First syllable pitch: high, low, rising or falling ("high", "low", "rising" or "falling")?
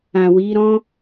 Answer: low